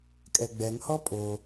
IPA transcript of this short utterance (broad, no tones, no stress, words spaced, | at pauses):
kʼɛɡ͡bɛŋhɔ pʼo